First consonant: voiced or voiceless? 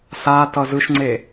voiceless